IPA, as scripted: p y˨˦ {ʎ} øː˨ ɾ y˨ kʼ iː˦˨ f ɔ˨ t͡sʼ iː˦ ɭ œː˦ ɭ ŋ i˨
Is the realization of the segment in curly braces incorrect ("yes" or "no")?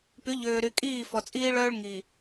no